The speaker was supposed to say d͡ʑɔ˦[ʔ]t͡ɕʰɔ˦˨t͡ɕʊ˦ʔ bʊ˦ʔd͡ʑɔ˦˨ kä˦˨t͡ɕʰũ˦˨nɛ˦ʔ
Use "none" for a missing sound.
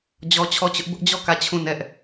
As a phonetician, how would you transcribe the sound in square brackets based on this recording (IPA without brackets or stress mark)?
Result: none